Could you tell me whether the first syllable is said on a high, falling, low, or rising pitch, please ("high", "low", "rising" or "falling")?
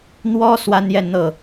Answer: high